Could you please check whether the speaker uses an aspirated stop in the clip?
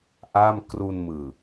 no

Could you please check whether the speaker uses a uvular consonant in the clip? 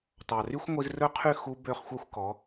yes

